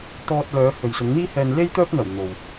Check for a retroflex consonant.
absent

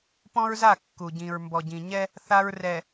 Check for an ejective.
absent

